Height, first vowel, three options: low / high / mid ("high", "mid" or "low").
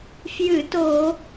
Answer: high